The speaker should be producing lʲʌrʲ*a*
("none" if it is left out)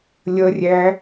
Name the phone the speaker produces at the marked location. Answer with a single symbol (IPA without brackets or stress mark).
æ